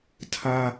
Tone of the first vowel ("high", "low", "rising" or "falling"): high